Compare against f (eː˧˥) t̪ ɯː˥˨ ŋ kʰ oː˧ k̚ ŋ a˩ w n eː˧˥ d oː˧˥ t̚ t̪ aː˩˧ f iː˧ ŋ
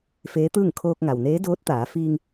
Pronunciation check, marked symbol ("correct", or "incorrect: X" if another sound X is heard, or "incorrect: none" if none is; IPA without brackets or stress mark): correct